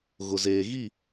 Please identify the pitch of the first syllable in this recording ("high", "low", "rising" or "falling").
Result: low